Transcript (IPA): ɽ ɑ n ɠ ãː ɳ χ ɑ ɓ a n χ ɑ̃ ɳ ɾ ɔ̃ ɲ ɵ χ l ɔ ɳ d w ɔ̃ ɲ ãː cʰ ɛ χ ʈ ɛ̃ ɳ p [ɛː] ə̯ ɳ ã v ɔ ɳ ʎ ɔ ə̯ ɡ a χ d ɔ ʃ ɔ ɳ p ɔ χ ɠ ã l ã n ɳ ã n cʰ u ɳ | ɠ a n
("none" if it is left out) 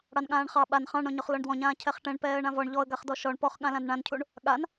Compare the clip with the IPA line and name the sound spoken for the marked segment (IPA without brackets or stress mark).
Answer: ɛː